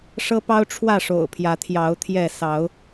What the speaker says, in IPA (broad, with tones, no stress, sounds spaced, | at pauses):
ʂ ɤ˦ p ɑ˦ ʊ̯ ʈ͡ʂʰ w ä˥˨ ʂ o̰˨˩ ʊ̯ pʰ j ä˨˦ t̪ʰ j ɑ˨˦ ʊ̯ t̪ʰ j ɛ˥˨ s ɑ˨˦ ʊ̯